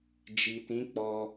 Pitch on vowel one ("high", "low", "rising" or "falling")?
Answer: low